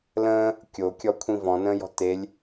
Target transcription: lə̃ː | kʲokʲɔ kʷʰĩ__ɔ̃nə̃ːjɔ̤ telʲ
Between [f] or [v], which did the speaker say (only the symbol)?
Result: v